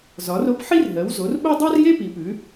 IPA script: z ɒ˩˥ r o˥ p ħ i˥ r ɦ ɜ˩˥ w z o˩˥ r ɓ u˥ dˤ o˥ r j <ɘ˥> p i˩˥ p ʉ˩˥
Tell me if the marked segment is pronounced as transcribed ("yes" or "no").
no